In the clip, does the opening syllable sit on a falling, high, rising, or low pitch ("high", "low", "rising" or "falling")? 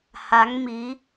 rising